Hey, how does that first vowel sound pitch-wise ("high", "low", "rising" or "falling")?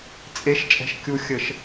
rising